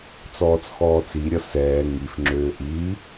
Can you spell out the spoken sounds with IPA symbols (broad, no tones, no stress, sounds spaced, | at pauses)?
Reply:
t͡s ɔː t͡s x ɔː t͡s i ɾʲ ʌ s ɛː ŋ i f ŋ͡ǁ øː ʔ iː